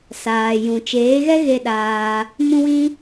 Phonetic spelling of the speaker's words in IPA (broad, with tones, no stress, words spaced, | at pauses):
saː˨jũ˨t͡ʃeː˨˦ ɣɛ˦ɣe˧ ɗaː˧ | mũ˧wĩ˧